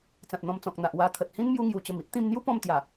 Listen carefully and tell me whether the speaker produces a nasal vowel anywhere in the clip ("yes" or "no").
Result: yes